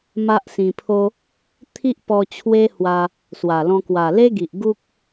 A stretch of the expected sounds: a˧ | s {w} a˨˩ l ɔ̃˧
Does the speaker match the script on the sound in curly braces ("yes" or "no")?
yes